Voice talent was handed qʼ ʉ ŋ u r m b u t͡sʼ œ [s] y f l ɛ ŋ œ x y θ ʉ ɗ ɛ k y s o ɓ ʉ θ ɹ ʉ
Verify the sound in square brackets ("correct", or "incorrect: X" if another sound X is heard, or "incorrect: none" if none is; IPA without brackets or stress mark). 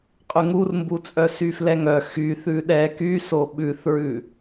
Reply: correct